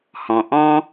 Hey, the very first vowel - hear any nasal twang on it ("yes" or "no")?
yes